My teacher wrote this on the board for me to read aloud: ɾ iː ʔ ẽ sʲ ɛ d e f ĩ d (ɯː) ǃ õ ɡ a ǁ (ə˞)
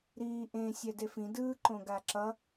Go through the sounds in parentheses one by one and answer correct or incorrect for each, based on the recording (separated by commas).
correct, incorrect